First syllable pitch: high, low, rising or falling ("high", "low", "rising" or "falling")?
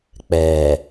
low